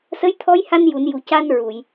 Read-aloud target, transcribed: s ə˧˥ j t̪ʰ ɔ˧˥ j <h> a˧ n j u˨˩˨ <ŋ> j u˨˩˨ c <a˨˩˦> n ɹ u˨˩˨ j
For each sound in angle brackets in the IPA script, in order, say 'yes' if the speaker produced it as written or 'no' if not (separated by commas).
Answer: yes, no, no